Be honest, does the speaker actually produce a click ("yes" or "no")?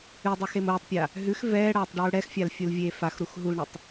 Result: no